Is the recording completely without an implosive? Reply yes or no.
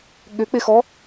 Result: no